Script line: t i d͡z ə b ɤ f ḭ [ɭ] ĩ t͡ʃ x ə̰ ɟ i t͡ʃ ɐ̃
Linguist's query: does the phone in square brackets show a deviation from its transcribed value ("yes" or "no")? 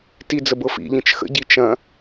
yes